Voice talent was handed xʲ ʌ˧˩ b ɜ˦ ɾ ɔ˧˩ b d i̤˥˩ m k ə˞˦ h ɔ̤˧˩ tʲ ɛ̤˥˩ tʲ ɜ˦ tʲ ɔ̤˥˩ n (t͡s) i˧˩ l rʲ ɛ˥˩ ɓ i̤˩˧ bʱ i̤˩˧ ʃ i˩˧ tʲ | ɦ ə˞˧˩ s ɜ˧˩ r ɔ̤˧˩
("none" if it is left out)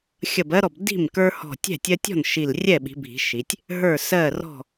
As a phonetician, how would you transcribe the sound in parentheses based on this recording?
ʃ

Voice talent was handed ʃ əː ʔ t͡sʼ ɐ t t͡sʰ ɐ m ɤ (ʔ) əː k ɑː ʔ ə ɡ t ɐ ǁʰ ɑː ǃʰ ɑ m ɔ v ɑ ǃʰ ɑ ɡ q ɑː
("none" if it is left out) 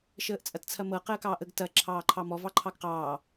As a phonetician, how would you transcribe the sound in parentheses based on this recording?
q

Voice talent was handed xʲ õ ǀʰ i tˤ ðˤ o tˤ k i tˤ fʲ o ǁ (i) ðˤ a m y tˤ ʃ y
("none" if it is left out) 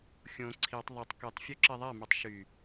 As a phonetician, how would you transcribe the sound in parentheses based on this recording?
i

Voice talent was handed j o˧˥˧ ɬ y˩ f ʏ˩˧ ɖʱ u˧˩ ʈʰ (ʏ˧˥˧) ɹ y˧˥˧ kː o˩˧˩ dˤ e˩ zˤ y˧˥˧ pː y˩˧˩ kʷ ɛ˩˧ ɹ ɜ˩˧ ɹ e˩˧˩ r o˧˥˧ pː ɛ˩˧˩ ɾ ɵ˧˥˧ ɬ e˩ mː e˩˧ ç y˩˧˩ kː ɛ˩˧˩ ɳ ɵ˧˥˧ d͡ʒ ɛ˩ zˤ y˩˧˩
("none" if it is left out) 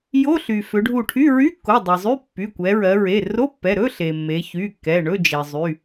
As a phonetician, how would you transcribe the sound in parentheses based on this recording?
y˧˥˧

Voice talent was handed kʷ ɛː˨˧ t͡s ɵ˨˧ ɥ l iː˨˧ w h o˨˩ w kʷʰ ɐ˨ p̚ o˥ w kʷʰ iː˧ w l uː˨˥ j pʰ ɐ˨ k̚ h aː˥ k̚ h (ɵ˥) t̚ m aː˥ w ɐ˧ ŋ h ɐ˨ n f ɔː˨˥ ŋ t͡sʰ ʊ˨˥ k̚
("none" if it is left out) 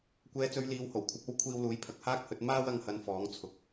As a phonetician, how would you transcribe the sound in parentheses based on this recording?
ɵ˨˥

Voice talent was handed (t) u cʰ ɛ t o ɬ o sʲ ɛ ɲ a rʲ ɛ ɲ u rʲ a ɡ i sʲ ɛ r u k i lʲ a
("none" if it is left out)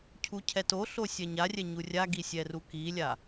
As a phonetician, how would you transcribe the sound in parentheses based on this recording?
cʰ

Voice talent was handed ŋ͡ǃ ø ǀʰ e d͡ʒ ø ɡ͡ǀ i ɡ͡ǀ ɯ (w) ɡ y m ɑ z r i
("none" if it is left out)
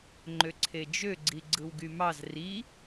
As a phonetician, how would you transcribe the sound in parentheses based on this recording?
w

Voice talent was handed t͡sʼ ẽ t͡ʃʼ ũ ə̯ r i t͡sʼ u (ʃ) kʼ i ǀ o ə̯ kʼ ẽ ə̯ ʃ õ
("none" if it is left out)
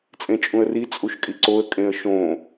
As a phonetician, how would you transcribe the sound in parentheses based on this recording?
ʃ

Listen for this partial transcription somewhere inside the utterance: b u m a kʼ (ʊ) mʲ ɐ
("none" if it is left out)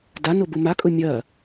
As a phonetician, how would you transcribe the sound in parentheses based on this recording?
ʊ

